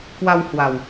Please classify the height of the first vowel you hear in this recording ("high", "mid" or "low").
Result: low